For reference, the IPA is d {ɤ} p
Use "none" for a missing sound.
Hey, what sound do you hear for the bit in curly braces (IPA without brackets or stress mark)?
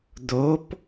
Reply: o